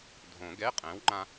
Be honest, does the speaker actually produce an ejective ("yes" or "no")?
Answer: yes